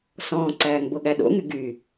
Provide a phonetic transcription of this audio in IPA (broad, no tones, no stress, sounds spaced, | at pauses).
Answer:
s ɔ̃ː ǀ æː ŋ b o ɠ æ ɗ o̰ ŋ y ɡ y